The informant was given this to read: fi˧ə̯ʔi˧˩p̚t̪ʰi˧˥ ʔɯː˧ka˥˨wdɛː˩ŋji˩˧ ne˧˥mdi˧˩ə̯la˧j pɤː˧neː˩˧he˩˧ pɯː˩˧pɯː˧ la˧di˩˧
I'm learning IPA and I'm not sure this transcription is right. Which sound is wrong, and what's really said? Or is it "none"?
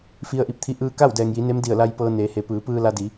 none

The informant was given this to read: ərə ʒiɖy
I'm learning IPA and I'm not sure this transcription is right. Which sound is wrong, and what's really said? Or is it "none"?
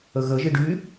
r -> ɣ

